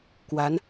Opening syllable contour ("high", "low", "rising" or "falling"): rising